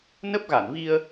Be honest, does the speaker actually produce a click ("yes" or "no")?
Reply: no